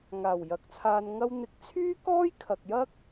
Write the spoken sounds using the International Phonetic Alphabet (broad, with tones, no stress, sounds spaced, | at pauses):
ŋ aː˨˩ w j ɐ˨ k̚ t͡sʰ aː˧ n ŋ ɐ˧ w n̪ ɪ˨˥ k̚ t͡sʰ yː˥ k ɔː˥ j kʰ ɐ˨ k̚ j ɐ˥ k̚